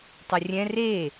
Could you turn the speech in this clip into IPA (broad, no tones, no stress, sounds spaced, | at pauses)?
tˤ ɯ rʲ ɛ̃ r e